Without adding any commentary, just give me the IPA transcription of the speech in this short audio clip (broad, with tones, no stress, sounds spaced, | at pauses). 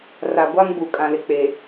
r a˨ ɡʷ a˦ ŋ b u˨ kʼ ã˨ l ɪ˨ k͡p e˨